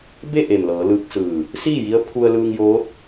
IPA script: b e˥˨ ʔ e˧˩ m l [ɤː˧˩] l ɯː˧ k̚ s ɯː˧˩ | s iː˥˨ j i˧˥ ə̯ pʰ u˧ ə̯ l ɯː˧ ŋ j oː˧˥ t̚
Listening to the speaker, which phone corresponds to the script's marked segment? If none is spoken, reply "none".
ɤː˩˧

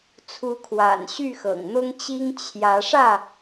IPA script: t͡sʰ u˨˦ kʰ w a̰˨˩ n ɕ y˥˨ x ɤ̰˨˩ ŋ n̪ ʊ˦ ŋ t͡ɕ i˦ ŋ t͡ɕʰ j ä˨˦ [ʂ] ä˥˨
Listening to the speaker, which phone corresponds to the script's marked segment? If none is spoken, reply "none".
ʂ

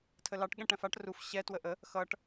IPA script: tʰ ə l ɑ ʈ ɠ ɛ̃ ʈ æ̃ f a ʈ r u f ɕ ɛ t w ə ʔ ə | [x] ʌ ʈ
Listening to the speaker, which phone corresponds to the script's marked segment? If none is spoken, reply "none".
x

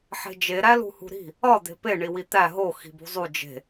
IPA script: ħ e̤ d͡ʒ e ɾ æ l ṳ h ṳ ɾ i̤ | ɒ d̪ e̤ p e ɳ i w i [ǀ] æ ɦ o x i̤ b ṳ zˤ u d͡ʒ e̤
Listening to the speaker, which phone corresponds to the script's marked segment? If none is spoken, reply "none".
t̪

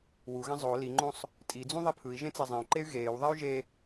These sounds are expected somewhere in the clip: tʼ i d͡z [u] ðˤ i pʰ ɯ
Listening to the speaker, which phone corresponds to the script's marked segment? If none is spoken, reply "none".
ũ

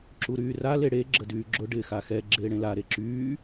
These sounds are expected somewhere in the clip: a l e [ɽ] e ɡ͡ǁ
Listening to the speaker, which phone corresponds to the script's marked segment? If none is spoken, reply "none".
ɽ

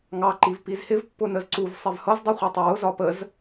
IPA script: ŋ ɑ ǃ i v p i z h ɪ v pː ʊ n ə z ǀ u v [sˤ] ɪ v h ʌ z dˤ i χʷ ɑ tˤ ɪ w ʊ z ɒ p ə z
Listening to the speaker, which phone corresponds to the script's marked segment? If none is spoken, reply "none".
sˤ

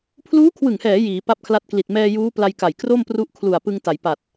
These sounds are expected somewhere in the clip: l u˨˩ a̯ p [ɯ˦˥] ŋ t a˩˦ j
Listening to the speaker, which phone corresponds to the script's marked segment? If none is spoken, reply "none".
ɯ˧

